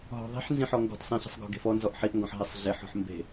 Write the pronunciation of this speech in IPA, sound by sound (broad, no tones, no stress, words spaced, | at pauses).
ɦɔ̤ðˤi̤ħ nzĩħɔŋɡɔ̤t sˤĩɬi̤sˤ ɡɔ̤ɡe̤fɔ nzɔʔħiʔŋɡɔ̃ħ ɦesˤɮeħɔ̤ħ mbe̤